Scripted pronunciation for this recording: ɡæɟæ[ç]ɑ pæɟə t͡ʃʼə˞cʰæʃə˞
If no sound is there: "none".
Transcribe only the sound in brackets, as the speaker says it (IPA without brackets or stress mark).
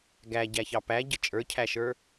ç